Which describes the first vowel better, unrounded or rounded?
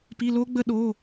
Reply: unrounded